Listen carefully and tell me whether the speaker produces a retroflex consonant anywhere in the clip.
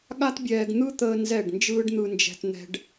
yes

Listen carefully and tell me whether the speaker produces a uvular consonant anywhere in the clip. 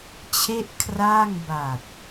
no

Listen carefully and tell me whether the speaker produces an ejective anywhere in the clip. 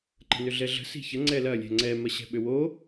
no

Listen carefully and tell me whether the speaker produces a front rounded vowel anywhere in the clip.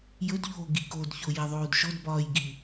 no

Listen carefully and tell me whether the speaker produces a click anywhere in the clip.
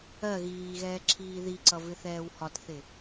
yes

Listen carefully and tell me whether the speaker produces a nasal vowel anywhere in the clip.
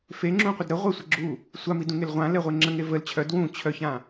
yes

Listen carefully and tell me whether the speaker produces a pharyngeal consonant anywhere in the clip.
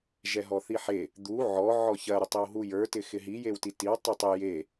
yes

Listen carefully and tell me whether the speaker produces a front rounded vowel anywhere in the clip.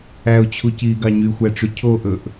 yes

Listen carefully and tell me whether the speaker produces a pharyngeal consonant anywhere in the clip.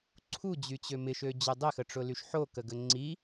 yes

